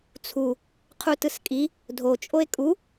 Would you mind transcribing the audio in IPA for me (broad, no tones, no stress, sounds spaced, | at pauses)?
t͡sʰ u | qʰ u t ɯ s kʼ i | dʱ o t͡ʃʼ o e̯ kʼ u